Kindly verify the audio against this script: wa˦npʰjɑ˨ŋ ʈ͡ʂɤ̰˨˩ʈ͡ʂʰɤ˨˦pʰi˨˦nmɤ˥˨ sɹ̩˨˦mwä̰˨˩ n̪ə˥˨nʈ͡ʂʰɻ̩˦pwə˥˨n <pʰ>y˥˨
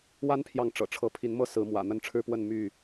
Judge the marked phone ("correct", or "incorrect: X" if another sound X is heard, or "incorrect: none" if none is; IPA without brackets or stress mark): incorrect: m